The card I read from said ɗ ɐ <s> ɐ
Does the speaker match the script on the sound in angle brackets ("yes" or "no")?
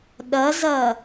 no